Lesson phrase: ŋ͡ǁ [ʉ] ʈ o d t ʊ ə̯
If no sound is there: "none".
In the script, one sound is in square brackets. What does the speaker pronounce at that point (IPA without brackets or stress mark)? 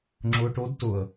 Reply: ʊ